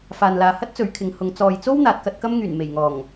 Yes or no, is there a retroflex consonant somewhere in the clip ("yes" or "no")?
no